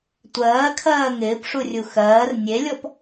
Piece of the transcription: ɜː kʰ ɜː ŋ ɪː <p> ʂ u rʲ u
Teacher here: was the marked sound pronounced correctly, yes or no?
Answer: yes